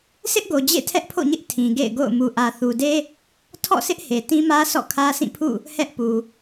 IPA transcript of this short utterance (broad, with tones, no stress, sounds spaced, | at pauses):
sʰ ɪ˦ ʔ ɡ o˨ d͡ʑ ḛ˦˨ tʰ ɛ˦ ʔ pʰ o̰˦˨ ɲ ɪ˦ ʔ tʰ ĩ˨ ɡ ḛ˦˨ ɪ̯ ɡ o̰˦˨ ʊ̯ m u˨ ʔ ä˨ θ u˨ d e˦ | tʰ ɔ̰˦˨ sʰ ɪ˦ ʔ h e˨ t ĩ˦ m ä˦ s ɔ̰˦˨ kʰ ä˦ s ĩ˦˨ pʰ ṵ˦˨ | h ɛ˦ ʔ p u˨